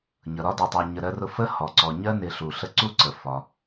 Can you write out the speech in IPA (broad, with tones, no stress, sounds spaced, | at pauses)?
ɲ ʌ˩ ɾ ɒ˥ d ɛ˨ tˤ ɜ˨ ɲ ə˨ ɾ ɜ˦ r ʊ˦ f ə˥ h ɔ˩ ǀ ɔ˨ ɲ ɜ˥ n ɪ˨ ɬ u˩ ɬ ə˥ ǀ u˦ ǀ ə˩ f ɒ˩